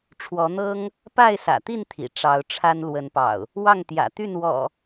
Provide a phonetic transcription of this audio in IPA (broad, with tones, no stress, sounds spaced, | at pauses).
ʈ͡ʂʰ w ɔ˨˦ n̪ ɤ˦ ŋ | p a˥˨ ɪ̯ s ä̰˨˩ t̪ i˥˨ n t̪ʰ ḭ˨˩ ʈ͡ʂ ɑ˨˦ ʊ̯ ʈ͡ʂʰ a˦ n l w ə˨˦ n p ɑ̰˨˩ ʊ̯ | w ɑ˥˨ ŋ t̪ j ä̰˨˩ t̪ y˥˨ n w ɔ̰˨˩